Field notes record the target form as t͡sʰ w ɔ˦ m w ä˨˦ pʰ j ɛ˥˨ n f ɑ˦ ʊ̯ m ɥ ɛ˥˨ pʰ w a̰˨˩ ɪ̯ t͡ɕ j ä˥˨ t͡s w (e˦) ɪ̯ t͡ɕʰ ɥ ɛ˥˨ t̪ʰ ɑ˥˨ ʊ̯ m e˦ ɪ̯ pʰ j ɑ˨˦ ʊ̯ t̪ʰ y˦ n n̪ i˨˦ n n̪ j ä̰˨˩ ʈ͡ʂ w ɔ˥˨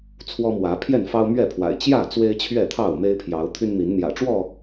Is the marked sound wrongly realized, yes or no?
no